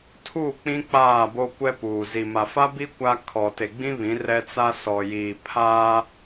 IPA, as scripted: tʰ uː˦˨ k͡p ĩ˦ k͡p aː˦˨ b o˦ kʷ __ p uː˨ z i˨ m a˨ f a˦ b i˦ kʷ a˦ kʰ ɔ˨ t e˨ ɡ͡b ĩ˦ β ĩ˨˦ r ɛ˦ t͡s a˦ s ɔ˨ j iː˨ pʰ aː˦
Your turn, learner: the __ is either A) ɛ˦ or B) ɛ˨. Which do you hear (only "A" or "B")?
A